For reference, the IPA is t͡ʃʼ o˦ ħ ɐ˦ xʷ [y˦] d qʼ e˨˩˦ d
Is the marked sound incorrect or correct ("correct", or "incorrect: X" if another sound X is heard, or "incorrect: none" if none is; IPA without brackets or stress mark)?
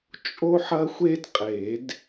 incorrect: e˦